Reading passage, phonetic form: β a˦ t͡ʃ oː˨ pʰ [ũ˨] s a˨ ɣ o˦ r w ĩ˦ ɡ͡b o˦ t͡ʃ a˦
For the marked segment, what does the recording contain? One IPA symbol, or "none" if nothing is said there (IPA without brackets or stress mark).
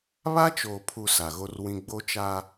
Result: u˨